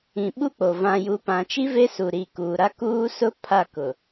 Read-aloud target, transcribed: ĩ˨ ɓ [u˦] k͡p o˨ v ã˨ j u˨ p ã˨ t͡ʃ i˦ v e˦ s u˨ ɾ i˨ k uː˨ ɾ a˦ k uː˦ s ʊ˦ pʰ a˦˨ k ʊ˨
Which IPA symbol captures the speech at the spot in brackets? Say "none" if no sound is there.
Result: u˦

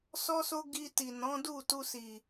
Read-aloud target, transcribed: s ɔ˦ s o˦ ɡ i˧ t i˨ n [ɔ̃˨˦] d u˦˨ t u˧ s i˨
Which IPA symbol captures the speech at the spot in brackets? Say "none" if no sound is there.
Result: ɔ̃˨˦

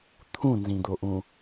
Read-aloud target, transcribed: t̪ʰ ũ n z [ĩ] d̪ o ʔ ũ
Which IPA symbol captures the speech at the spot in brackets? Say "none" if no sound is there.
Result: ĩ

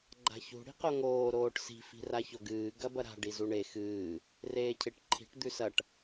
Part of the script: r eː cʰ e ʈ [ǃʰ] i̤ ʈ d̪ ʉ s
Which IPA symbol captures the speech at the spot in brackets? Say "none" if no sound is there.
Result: ǃʰ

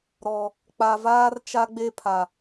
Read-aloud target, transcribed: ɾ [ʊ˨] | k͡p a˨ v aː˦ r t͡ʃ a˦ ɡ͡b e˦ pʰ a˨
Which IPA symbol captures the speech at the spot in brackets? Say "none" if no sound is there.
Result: ɔ˨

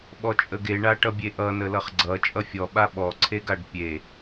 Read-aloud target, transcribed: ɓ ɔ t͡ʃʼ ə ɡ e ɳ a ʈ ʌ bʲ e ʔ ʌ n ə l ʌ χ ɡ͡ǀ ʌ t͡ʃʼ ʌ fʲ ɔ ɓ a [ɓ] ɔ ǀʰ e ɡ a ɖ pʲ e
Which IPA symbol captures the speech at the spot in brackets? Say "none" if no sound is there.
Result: ɓ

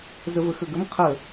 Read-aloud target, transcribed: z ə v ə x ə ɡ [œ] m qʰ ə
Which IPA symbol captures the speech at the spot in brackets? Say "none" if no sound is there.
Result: ə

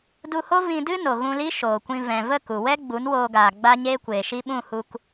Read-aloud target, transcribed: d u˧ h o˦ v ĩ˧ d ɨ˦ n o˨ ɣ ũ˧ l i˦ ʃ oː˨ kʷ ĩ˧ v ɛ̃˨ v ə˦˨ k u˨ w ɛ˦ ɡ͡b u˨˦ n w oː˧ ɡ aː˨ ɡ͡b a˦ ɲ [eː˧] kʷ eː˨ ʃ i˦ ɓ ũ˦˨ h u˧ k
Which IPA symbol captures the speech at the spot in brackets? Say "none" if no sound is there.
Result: eː˦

